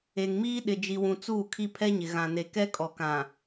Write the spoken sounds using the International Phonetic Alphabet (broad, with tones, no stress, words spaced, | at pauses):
e˨ŋmiː˦ ɗɪ˨d͡ʒi˨wũ˨t͡suː˦˨ kʰi˦pʰɛ˦ɲɪ˨ ɣã˨ne˨kɛ˦kʼɔ˨ kã˨